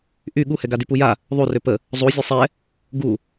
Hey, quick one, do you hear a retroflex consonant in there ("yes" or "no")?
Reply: no